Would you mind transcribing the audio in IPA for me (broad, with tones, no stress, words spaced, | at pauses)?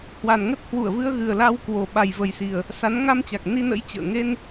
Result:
hwa˨˩nŋə˦˥t̚hwu˧˩ə̯vɨ˧ə̯ ɣɨ˨˩ə̯la˧wkwo˨˩ ɓa˨˩jvə˨˩jsi˨˩ə̯ | sa˨˦n ŋa˧mt͡ɕa˨˩k̚ ni˧nə̰˧˥j t͡ɕə̰ː˧˨ ŋe˧n